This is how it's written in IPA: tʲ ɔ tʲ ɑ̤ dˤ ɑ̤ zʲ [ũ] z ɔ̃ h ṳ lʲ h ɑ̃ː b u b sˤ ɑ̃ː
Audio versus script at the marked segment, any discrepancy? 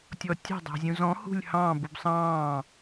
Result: no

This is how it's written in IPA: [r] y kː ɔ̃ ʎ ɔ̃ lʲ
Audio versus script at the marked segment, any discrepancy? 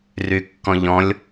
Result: no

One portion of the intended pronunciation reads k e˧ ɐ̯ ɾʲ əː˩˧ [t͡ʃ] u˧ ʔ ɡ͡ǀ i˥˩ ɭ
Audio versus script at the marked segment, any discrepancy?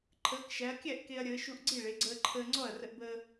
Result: yes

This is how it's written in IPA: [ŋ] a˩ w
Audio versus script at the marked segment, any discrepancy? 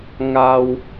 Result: no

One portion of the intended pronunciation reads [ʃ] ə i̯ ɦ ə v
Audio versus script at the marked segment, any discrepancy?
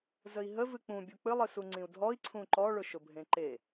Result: yes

